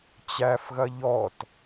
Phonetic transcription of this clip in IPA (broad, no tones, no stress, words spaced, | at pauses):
t͡ɕæfɣɐ ʎɔt